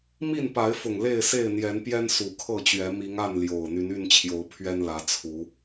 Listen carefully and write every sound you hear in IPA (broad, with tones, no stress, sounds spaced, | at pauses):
m i˥˨ n p a˨˦ ɪ̯ f ʊ˨˩ ŋ l e˥˨ ɪ̯ s e˥˨ ɪ̯ n̪ j ɛ˨˦ n p j ɛ˦ n s u˨˩ kʰ ɤ˥˨ t͡ɕ ɥ ɛ˨˦ m i˨˦ ŋ a˥˨ n l j o˨˩ ʊ̯ n̪ y˨˦ n y˥˨ n t͡ɕʰ j o˨˦ ʊ̯ pʰ ɥ ɛ˦ n l ä˨˦ t͡sʰ u˨˦